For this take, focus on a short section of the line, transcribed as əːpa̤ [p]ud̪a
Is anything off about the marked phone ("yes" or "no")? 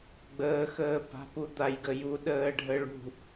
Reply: no